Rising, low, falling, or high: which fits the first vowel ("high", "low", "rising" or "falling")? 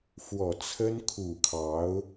low